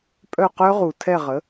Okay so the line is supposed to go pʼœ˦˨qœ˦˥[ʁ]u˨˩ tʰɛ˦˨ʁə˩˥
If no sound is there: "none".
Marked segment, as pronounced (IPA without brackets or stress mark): ʁ